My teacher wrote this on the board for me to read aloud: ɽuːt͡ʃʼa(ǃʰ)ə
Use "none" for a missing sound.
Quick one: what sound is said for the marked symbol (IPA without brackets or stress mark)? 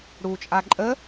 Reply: ǃʼ